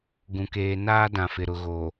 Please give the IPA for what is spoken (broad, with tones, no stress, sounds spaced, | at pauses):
ɡ ũ˨ k eː˨ n aː˦ d ã˨ f ɪ˨ ɾ ʊ˨ ɣ oː˨